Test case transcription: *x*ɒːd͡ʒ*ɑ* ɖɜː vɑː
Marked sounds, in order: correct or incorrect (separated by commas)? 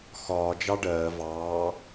correct, correct